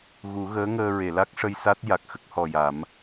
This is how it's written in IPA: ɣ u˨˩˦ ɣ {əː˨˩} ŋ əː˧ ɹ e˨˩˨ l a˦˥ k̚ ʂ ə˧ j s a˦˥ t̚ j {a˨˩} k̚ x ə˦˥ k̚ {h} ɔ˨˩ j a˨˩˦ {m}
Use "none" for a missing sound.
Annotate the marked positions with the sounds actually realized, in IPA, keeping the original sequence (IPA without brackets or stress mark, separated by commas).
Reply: əː˧˥, a˨˩, h, m